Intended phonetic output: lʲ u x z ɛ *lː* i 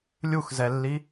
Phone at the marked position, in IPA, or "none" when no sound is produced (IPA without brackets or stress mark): lː